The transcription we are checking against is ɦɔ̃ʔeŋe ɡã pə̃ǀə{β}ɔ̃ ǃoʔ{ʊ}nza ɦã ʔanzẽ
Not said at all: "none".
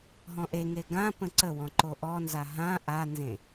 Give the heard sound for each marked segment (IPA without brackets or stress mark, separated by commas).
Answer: w, ɔ